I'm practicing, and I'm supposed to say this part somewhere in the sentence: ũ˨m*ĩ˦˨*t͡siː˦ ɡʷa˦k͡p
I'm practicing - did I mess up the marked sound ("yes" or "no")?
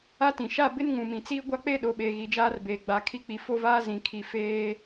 yes